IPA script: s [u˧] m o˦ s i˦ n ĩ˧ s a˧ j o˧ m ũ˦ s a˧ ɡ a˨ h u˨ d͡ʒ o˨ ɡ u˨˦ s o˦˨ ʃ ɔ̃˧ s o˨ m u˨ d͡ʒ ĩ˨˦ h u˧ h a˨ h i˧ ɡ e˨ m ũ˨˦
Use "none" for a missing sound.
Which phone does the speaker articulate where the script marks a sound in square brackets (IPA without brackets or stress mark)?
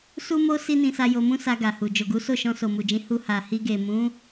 u˦